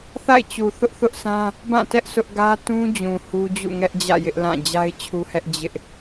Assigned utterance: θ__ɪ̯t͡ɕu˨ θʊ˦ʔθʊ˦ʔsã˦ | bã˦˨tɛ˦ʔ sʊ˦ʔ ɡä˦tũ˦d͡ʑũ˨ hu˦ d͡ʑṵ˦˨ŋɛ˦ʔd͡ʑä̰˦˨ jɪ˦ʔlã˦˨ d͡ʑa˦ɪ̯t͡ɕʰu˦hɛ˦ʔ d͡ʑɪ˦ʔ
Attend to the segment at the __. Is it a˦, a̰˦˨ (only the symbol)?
a̰˦˨